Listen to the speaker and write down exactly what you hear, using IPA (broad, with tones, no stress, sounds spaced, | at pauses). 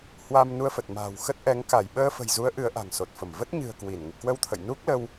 h w a˧ m n u˧ ə̯ f ə˨˩ t̚ m a̤ː˨˩ w x ə˦˥ t̚ ʔ ɛ˨˦ ŋ k a˧˩ j ɓ əː˧ f ə̤˨˩ j z u˨˦ ə̯ ʔ ɨ˨˦ ə̯ ʔ a̤˨˩ ŋ s o˨˩ t̚ f ə˧˩ m v ə˦˥ t̚ ɲ ɨ̤˨˩ ə̯ k w i˧˩ n ŋ ḭ˧˨ k w ə˧ w t̪ʰ ə̰˧˨ j n u˦˥ k̚ l ə˧ w